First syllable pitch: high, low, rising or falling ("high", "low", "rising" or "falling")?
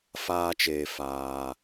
high